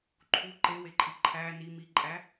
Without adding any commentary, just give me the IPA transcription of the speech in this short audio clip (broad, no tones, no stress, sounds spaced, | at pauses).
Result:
ǃʰ u ǃ e w e ǃʼ i ǃʰ æ n i m i ǃʼ æ